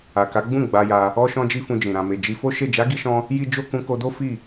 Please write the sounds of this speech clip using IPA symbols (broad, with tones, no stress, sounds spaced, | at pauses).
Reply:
a˨ k a˨˦ ɡ͡b ũ˦˨ ɡ͡b a˧ j a˧ | ɔ˦ ʃ ɔ̃˦ d͡ʒ i˦ f ũ˧ d͡ʒ ĩ˨ ɾ ã˨ m e˨ d͡ʒ i˧ f o˦ ʃ e˦˨ d͡ʒ a˨˦ ɡ i˧ ʃ ɔ̃˧ | j i˦ d͡ʒ o˦ k ũ˧ k o˧ d o˦ f i˦˨